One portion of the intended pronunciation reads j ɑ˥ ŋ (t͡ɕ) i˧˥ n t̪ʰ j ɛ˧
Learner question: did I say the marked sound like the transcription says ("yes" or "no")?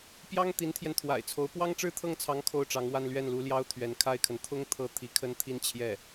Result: no